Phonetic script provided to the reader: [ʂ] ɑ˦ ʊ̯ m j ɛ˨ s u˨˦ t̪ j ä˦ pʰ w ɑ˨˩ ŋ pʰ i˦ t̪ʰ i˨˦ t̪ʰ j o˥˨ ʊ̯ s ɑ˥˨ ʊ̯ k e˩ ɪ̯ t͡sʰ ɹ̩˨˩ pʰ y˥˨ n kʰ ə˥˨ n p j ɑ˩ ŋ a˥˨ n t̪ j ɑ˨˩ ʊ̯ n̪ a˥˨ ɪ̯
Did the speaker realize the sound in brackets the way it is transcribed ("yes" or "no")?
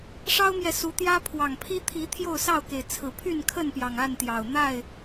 yes